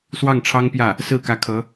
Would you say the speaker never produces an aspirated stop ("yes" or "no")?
no